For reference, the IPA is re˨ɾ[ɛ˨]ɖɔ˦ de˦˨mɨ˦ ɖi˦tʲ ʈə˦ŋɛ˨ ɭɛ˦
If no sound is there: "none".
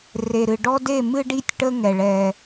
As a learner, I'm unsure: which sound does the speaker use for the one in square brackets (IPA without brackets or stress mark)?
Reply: ɨ˨